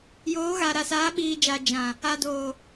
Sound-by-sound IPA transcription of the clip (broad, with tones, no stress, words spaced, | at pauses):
joː˨˦ɣa˨ ɾa˨saː˨˦ɓiː˨d͡ʒaː˨ d͡ʒã˨ | a˨doː˨